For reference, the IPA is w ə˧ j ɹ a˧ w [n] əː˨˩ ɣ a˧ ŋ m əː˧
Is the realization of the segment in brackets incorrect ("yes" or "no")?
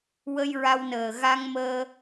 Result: no